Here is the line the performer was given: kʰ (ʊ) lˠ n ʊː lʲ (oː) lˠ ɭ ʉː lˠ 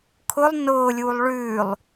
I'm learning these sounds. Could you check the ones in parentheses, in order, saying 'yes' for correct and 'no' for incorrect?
yes, no

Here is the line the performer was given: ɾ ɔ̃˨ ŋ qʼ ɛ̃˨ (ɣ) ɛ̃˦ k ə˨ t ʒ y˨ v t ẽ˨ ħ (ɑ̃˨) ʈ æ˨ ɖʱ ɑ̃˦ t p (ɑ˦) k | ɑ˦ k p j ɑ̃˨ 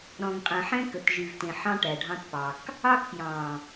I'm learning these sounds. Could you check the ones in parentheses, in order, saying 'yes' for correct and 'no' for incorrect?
no, no, no

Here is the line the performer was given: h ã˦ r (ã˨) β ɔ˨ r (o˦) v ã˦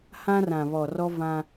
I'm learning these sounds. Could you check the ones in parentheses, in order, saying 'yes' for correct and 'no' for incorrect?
yes, no

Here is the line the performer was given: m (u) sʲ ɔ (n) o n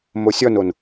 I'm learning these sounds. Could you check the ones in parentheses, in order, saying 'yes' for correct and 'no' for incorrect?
no, yes

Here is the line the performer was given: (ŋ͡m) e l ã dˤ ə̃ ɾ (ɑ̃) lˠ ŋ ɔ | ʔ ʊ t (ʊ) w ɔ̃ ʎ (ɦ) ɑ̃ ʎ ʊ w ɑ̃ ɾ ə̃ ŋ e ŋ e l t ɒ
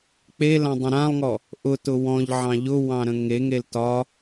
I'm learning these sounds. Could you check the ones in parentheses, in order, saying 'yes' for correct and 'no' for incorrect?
no, no, yes, no

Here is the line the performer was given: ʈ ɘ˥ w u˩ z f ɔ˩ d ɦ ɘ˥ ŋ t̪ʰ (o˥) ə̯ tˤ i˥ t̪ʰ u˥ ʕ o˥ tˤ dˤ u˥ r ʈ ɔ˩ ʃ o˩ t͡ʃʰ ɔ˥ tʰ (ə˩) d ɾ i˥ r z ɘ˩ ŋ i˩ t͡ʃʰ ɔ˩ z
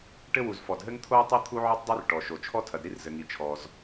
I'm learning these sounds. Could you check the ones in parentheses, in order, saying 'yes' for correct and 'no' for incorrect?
yes, no

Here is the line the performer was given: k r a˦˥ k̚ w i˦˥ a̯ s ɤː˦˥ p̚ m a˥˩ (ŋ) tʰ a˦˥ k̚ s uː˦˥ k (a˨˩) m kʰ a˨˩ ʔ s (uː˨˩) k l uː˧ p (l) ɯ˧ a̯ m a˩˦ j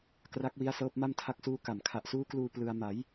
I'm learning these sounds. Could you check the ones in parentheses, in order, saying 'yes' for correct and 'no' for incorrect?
no, yes, no, yes

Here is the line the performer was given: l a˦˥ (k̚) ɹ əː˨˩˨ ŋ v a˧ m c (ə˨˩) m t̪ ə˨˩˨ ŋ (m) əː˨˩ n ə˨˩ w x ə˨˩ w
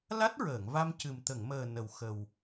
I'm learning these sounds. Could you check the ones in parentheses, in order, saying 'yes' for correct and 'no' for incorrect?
no, no, yes

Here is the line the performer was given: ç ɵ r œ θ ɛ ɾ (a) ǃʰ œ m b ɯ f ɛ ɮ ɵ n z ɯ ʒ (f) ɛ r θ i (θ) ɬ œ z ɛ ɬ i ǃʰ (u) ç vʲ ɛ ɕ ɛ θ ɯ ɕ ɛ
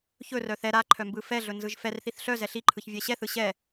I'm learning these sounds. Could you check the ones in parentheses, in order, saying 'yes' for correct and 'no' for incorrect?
yes, yes, yes, no

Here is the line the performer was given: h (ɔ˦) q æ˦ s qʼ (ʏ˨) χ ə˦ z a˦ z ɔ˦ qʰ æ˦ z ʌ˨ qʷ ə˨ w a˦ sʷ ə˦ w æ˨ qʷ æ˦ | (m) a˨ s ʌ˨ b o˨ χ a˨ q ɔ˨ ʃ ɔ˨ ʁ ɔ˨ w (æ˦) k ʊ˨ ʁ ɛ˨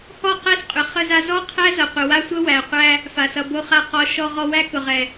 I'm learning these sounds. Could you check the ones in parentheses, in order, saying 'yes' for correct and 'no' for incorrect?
no, yes, no, yes

